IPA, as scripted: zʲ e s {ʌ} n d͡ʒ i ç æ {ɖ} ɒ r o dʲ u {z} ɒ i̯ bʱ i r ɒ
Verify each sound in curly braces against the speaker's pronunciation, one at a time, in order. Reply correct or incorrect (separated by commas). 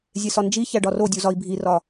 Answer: incorrect, correct, correct